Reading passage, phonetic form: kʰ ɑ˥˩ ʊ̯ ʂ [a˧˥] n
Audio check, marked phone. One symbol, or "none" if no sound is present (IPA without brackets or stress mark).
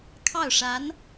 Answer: a˧˥